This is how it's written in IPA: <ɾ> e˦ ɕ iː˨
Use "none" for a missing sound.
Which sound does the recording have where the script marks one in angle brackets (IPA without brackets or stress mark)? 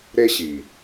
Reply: ɾ